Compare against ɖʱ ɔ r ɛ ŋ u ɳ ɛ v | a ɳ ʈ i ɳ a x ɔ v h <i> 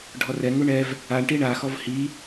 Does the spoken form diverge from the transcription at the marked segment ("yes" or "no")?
no